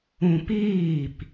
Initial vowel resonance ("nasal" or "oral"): nasal